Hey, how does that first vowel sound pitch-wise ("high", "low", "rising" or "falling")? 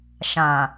low